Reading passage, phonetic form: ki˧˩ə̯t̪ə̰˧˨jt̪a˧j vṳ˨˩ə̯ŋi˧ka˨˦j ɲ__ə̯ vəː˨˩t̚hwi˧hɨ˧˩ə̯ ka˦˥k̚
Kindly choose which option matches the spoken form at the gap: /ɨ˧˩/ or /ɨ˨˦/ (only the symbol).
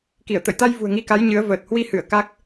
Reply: ɨ˨˦